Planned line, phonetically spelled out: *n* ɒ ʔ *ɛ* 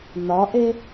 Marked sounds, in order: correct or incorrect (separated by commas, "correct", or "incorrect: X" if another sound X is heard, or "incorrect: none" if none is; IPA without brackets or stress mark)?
correct, incorrect: e